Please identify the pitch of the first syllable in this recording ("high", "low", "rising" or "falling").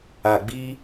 low